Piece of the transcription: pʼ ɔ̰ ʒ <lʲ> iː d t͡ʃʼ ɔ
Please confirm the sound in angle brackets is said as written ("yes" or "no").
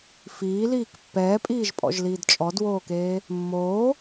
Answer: no